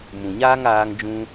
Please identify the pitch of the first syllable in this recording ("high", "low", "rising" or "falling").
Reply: low